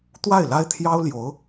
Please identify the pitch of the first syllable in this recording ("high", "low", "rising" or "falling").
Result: falling